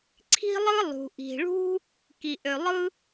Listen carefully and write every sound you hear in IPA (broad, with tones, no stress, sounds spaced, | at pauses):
ǀʰ i̤˥ lˠ ɯ˥ lˠ ṳ˩ ʔ i̤˩ ɭ ṳ˥ | k i˩ ʔ ø˩ lˠ ɯ˥